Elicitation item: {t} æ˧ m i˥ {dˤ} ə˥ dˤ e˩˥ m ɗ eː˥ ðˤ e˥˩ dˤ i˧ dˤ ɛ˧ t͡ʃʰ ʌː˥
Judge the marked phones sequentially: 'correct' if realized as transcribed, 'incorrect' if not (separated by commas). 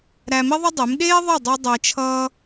incorrect, incorrect